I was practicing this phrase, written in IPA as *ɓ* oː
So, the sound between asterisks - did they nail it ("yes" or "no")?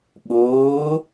yes